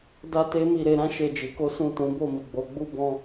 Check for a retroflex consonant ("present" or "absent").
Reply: absent